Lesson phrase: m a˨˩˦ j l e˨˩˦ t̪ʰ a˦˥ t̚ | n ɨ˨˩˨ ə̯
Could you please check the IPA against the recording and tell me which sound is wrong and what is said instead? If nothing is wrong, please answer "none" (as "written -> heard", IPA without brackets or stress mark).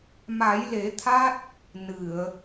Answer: none